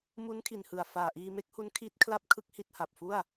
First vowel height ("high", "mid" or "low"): high